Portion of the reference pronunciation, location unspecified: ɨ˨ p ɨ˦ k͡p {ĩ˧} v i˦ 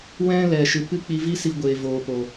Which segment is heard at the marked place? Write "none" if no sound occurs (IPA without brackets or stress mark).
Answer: i˧